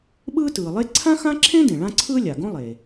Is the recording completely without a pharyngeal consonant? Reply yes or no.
yes